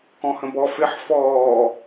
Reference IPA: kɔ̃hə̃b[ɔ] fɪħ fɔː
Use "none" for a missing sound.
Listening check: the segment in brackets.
ɔ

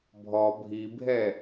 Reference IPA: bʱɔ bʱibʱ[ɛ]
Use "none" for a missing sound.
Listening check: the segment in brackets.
ɛ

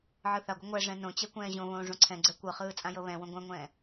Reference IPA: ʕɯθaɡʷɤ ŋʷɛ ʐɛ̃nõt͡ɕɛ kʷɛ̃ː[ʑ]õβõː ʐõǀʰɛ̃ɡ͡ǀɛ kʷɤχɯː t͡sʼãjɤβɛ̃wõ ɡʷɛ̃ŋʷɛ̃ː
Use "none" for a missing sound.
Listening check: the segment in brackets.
ʑ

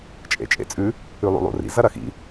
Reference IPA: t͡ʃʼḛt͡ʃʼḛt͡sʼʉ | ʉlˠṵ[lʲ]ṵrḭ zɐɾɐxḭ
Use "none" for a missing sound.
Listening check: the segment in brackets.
lˠ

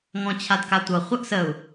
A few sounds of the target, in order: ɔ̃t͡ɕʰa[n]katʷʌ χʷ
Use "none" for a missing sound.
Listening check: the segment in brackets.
d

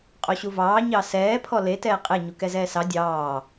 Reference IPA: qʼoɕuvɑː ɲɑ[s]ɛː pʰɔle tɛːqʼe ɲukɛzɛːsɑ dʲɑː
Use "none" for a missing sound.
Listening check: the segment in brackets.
s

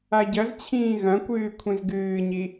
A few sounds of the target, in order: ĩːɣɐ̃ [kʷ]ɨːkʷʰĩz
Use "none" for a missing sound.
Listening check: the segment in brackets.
kʷ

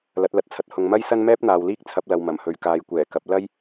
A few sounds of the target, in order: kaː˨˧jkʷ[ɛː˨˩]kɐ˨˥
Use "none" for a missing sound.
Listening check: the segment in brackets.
ɛː˨˩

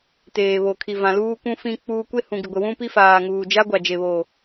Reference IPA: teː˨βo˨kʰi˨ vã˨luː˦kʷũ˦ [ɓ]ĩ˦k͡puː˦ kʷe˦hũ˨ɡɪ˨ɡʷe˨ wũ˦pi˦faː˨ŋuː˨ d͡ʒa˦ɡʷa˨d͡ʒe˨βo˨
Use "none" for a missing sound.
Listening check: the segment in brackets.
f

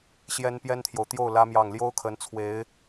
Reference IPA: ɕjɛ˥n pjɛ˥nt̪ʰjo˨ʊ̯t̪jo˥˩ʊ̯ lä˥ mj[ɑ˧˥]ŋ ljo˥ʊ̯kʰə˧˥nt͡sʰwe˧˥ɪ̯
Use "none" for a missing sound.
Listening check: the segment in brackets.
ɑ˥˩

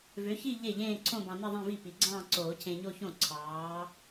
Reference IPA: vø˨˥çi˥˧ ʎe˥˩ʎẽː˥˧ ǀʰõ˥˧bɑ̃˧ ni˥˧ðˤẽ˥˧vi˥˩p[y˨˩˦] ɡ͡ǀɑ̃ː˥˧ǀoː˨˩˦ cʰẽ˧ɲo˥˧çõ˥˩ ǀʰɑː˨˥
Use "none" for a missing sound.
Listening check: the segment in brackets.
i˨˩˦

